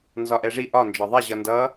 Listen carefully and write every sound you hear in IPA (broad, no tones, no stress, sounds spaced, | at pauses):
n z ɒ ʔ ɛ ʐ i ʔ ɒ n d͡ʒ ɒ ðˤ ɛ ʑ ʌ n d ʌ